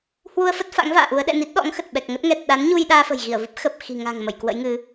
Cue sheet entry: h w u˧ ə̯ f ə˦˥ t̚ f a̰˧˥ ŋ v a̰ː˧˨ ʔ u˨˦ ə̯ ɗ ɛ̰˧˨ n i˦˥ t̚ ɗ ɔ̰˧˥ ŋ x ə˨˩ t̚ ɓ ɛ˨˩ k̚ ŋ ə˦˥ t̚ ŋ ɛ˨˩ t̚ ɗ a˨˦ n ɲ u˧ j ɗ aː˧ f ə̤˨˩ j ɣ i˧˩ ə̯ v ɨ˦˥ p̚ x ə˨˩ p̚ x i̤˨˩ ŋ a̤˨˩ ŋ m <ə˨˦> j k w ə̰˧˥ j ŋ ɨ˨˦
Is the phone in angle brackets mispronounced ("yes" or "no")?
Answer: yes